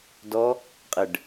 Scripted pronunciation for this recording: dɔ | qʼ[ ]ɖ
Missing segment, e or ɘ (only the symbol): ɘ